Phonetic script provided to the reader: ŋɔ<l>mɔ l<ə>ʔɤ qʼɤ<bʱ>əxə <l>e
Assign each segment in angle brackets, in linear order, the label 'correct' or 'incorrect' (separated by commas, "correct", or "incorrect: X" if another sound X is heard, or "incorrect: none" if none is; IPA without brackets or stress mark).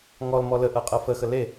correct, correct, incorrect: f, correct